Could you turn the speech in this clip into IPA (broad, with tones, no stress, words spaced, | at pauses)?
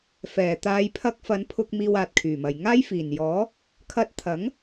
fɛː˨˩ t̪aː˨˧j pʰɐ˧k̚ fɐ˨˧npʰʊ˧k̚ miː˧waː˨t̚ kʰyː˨˩mɐ˨j ŋaː˥jfiː˨˩njɔː˨˥ | kʰɐ˧t̚t̪ʰɐ˨˥ŋ